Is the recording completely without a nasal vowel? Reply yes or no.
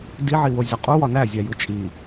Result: yes